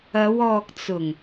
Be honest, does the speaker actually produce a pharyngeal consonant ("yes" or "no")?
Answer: no